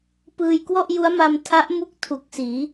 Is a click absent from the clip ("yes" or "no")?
yes